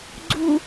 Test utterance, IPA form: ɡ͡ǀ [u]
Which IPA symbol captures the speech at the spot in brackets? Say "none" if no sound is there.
u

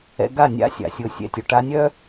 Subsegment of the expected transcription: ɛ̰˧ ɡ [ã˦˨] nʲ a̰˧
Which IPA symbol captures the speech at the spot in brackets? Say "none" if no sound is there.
a˦˨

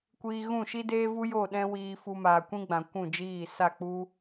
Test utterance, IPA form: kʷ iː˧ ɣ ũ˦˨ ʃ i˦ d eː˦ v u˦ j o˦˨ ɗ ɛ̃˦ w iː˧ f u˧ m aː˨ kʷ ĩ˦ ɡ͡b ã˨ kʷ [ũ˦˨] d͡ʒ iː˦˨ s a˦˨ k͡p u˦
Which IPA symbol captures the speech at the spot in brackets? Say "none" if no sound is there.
ũ˦˨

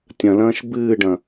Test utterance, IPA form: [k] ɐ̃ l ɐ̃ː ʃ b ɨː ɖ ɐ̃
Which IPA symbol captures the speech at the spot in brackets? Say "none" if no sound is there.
tʲ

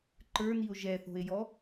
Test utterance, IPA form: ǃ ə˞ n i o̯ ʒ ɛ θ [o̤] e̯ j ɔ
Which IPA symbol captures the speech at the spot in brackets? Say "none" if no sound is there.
o̤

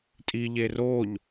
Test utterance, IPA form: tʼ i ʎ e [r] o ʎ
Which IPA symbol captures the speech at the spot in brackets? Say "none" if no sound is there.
r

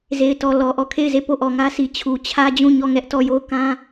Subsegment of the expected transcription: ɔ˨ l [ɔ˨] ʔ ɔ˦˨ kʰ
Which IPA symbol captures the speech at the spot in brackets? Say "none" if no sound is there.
ɔ˨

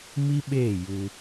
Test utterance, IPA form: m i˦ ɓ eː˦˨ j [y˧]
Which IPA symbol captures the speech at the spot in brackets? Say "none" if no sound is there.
u˧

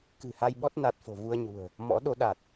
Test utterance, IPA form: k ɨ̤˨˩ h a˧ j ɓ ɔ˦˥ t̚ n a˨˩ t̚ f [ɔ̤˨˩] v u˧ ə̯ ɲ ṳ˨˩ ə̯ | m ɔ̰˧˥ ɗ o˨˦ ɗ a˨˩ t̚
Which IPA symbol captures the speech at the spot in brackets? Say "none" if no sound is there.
o̤˨˩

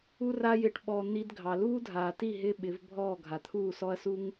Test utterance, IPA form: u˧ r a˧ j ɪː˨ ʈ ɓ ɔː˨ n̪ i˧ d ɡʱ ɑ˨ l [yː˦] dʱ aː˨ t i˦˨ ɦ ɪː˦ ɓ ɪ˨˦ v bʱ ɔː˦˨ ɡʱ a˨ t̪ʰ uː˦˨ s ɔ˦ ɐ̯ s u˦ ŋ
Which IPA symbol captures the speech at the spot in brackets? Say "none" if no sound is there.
uː˦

